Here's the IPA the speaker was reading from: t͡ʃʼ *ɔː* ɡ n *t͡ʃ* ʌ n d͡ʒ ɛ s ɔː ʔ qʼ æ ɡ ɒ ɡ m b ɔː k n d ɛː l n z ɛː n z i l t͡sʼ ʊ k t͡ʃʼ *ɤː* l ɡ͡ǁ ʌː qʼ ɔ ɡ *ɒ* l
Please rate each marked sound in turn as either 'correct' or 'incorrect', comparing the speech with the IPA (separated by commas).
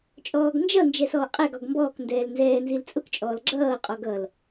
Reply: correct, incorrect, incorrect, incorrect